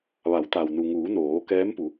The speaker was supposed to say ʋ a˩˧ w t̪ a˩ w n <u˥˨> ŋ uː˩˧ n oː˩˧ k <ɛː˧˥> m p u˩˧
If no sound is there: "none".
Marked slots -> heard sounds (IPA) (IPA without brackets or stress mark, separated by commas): u˩, ɛː˧˥